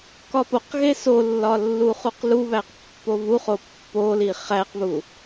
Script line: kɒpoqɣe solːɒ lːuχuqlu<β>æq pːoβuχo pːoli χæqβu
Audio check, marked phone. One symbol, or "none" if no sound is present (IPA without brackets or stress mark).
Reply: β